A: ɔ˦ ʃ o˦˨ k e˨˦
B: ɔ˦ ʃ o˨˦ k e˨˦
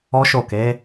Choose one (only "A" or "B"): A